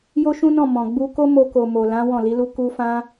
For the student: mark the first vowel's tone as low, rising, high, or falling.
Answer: high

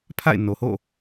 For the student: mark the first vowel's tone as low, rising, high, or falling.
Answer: falling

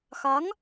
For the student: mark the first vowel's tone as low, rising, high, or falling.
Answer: rising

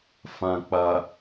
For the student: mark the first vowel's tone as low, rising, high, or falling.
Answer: low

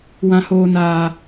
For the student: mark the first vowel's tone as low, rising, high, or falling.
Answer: low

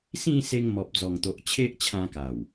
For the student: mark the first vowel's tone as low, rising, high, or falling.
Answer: falling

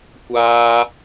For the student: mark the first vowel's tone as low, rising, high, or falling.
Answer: high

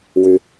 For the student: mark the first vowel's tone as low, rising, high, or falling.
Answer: low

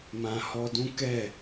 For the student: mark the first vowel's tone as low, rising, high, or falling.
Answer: low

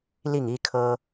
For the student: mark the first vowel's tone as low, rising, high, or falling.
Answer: falling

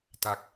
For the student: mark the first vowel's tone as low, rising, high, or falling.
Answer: low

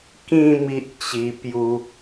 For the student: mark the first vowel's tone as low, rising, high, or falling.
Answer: falling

